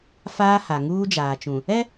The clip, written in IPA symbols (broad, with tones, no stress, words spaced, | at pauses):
faː˦ha˨ ŋuː˦d͡ʒaː˨t͡ʃũ˨ | ɛ˦